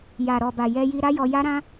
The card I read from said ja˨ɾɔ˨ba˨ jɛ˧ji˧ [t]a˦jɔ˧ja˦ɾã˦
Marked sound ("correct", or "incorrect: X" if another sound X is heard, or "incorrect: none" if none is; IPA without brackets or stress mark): incorrect: ɾ